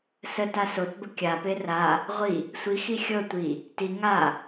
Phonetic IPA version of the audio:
s ə t a s o t b ə kʲ a p e r a | ʁʷ i | sʷ i x i xʲ ɤ tʷ i | t i ŋ a

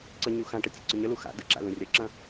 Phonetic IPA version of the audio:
ǀ ə ɲ u x ã ʈ ə tʲ ṵ ǀ ə ɲ ə l u x a̰ d ə̰ ǁ a̰ l ũ rʲ ɐ ǁ ɐ̃

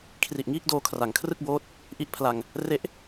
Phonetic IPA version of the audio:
kʰ r i˨˩ ʔ ŋ iː˥˩ k̚ d oː˧ kʰ r a˩˦ ŋ kʰ r ɯ˥˩ k̚ b oː˦˥ t̚ | ʔ i˦˥ ʔ pʰ l a˧ ŋ | r e˥˩ ʔ

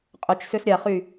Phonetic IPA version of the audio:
qʼ ʏ t͡ʃ s ʏ s ɾʲ a χ y

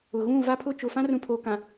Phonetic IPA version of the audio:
ʊ˨ ɣ ũ˦˨ v a˦ pʰ ʊ˦˨ t͡ʃ ʊ˨ f ã˦ r ũ˨ pʰ oː˨ k ã˨

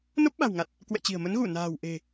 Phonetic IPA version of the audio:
n o˦˥ p̚ ɓ a̤˨˩ w ŋ a˨˩ t̚ | k w ɛ̰˧˨ t͡ɕ i̤˨˩ ə̯ m ə˨˦ n ɣ u˧˩ n a̤ː˨˩ w ʔ e̤˨˩

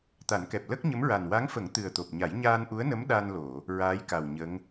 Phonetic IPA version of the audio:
t̪ a˨˩˦ n k ɛ˨˩ p̚ l ə˦˥ k̚ ɲ ə˧˥ m ɹ a˨˩ n w a˧˥ ŋ f ə˨˩˦ ŋ t̪ ɨ˨˩ ə̯ t̪ o˨˩ p̚ ɲ a˨˩˦ j ɲ aː˧ n ʔ u˧˥ ə̯ n ə˧˥ m ɗ a˧ n l o˨˩˨ | ɹ aː˧˥ j k a˨˩ w ɲ ə˧˥ ŋ

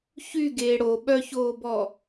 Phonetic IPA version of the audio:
ç y ɡ eː ɽ o ɓ œ ç oː b ɔ

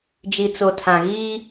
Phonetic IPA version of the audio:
d͡ʒ i˨ t͡s o˨ tʰ ã˨ ɣ iː˦

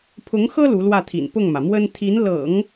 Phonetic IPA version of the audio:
pʰ ʊ˧˥ ŋ x ɤ˥ l u˧˥ l w ä˥˩ t̪ʰ ḭ˨˩ n p ʊ˥˩ ŋ m ä˩ m w ə˥ n t̪ʰ i˧˥ n l ɤ̰˨˩˦ ŋ

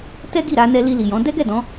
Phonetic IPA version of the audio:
t ɛ˦ ɡ i˦˨ ɾ a˧ n ɛ˧ l i˧ l i˨ j ɔ̃˨˦ d ɛ˦ ɡ ɛ˦˨ d ɔ̃˨˦

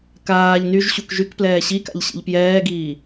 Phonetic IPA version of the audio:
k aː ʎ n y ʒ ɕ u k ʒ y k p l ɛː ɕ i k a̰ ʎ ɕ ḭ ʎ p j ɛː ɡ iː

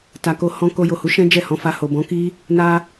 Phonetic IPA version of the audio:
t a˨ k o˧ h ɔ̃˧ k o˧ j o˨ h u˨˦ ʃ ɛ̃˦ d͡ʒ ɛ˦˨ h ɔ̃˨˦ f a˧ h o˨ b ɔ̃˨˦ k i˦ | n a˦

